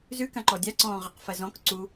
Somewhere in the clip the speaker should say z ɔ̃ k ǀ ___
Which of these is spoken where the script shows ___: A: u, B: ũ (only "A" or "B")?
A